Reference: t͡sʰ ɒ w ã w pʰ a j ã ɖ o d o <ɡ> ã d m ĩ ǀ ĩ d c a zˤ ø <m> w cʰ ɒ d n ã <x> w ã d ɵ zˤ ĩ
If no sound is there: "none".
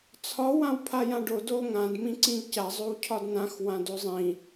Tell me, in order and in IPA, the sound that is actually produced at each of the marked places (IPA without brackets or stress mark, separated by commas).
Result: ŋ, none, x